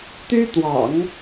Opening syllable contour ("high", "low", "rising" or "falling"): high